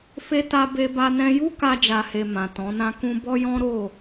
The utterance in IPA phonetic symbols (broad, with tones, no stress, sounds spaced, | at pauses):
f e˧ t a˧ b e˧ b a˧ n ɛ̃˧ j u˦ k a˧ d͡ʒ a˨ h e˨ m ã˨ t ɔ̃˨˦ n ã˦ k ũ˧ b ɔ˦ j ɔ̃˦ ɾ o˦˨